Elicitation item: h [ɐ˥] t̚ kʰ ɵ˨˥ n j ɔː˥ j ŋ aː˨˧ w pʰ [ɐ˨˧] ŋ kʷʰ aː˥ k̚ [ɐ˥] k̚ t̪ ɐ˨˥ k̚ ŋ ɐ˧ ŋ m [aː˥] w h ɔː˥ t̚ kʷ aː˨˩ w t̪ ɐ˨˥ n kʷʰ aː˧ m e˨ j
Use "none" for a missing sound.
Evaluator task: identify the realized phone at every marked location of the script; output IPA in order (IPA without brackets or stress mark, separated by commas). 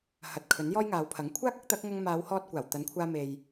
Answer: ɐ˨, ɐ˨˥, ɐ˥, aː˨˧